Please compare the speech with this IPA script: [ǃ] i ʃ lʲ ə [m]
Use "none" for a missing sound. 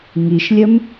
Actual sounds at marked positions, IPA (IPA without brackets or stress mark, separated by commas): ŋ, m